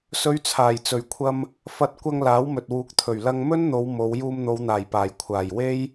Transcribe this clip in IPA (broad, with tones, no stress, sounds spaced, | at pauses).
s ɵ˨˧ ɥ t͡sʰ aː˨˩ j t͡s ɵ˨˩ ɥ kʷʰ ɐ˧ m | f ɐ˧ t̚ kʷ ɐ˧ ŋ l aː˨˥ w m ɵ˨ t̚ w uː˨˥ k̚ t̪ʰ ɵ˨˩ ɥ l ɐ˧ ŋ m ɵ˥ n n̪ o˨˧ w m o˨˧ w j uː˧ m n̪ o˨˧ w n̪ aː˨˩ j p aː˨˩ j kʷʰ aː˨˩ j w e˥ j